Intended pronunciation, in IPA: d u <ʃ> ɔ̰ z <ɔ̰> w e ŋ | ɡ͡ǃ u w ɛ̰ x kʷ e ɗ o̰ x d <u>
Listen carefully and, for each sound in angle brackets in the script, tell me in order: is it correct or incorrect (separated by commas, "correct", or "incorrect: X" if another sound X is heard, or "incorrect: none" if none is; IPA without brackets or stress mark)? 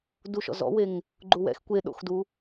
correct, correct, correct